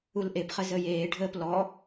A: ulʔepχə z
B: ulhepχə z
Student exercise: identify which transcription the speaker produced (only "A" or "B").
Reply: A